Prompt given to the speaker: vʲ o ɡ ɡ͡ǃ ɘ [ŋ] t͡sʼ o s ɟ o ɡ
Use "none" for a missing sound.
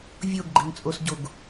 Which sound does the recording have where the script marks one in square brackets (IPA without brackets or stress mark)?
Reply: ŋ